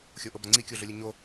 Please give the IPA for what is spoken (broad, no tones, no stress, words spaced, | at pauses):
xʲoʔobaŋ͡ǀi kʲoɮʊlʲʊɲo